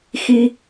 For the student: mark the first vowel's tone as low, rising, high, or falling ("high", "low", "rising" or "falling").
high